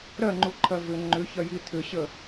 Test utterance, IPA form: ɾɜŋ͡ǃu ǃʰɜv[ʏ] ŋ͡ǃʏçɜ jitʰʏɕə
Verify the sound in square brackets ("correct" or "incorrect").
correct